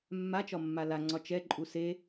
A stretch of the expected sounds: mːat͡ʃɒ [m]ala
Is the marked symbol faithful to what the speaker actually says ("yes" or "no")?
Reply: no